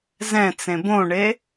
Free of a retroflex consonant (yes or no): no